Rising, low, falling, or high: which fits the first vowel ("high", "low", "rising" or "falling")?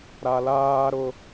low